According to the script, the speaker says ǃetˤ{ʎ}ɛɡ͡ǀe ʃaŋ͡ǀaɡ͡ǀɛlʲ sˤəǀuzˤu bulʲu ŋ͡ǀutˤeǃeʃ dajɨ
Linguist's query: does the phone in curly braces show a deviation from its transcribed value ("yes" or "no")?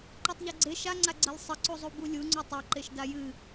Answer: no